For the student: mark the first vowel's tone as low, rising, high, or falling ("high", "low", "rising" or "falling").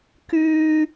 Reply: high